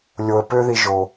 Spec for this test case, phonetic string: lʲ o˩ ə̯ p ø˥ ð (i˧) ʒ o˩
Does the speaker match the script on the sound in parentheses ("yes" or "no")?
yes